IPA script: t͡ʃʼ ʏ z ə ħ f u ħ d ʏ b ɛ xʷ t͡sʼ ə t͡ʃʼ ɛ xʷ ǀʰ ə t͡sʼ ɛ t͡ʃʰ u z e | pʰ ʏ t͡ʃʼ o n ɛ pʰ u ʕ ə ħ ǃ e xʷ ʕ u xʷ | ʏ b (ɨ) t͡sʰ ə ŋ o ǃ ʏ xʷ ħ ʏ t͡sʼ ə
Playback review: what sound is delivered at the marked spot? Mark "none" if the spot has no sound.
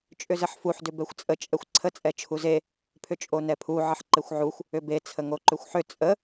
e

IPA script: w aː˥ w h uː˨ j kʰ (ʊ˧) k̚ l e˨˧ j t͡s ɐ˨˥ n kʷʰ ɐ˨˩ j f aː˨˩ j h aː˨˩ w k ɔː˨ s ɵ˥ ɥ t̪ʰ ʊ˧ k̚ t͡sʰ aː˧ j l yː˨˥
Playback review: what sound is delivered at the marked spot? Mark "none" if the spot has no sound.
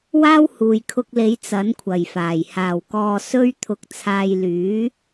ʊ˧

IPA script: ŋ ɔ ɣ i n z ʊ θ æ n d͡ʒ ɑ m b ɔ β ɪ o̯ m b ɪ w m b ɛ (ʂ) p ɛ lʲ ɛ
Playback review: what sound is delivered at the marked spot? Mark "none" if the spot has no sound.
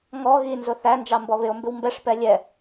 ʂ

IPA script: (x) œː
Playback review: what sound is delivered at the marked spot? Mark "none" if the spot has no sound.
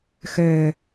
x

